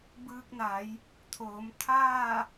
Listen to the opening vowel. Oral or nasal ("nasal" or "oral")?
oral